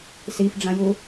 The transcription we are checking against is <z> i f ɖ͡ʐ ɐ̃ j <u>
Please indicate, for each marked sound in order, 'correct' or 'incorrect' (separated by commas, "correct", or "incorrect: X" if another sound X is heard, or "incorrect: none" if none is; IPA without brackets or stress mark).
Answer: incorrect: s, correct